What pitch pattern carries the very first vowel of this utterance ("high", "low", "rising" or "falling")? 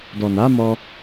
low